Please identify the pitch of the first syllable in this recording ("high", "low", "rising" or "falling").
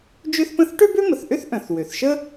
high